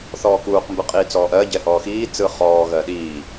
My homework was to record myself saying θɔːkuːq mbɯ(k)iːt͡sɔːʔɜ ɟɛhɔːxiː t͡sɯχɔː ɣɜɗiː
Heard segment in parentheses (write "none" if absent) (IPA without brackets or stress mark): qʼ